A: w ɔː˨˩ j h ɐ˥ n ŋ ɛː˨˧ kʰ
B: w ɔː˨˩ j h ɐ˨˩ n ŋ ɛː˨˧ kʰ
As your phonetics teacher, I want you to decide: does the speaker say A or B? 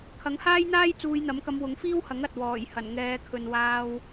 B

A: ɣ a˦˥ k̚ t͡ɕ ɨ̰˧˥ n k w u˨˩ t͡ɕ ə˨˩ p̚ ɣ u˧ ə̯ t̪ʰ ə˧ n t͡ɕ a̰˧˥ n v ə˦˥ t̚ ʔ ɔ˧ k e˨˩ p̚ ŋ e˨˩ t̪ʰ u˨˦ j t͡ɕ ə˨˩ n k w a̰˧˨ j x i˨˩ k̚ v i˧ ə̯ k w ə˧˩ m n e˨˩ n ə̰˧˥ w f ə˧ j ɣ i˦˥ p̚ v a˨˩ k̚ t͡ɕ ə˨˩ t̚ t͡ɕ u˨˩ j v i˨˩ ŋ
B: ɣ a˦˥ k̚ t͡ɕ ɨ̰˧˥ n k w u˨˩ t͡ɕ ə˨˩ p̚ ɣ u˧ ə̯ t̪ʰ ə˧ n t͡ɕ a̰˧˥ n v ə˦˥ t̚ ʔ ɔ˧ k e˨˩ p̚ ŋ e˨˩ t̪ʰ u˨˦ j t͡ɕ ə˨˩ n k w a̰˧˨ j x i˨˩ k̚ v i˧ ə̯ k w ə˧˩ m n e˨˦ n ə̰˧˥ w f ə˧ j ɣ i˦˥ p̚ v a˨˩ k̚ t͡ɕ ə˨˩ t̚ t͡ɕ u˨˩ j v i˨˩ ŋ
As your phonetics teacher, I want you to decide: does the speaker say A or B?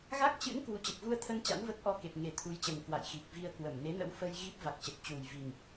B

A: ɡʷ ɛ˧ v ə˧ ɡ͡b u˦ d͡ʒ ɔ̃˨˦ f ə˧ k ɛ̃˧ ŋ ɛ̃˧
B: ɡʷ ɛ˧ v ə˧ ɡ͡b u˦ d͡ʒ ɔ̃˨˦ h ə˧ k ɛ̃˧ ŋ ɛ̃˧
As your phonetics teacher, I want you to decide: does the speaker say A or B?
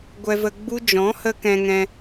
B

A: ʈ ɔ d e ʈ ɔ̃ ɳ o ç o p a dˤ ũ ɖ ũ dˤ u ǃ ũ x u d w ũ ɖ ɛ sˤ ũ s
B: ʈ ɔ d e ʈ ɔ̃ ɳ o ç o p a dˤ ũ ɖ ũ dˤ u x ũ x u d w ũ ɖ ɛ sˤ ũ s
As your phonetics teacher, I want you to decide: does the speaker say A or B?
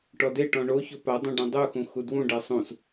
B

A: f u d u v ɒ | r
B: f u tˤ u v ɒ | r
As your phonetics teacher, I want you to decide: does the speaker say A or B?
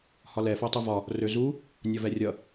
B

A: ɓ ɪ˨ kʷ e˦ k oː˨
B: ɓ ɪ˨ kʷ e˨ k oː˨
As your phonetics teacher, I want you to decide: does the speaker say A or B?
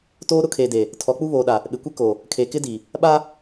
A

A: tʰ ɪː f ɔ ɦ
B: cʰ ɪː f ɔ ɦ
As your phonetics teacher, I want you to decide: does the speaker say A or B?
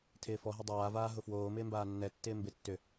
A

